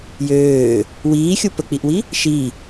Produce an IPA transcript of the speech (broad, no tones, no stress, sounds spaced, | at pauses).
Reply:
j øː | w iː xʲ u p ə k͡p i ʔ w i | ʃ i